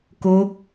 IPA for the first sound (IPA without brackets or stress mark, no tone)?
k